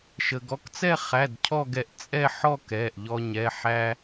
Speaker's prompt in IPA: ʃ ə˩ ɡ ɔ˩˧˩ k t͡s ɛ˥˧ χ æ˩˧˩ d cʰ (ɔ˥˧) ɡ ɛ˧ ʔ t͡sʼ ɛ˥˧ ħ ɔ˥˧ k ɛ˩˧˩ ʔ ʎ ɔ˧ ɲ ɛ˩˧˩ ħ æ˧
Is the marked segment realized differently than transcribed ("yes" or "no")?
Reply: no